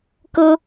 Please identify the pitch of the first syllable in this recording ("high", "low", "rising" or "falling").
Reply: high